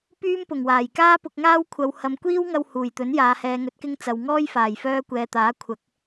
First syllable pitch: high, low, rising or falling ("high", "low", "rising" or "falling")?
high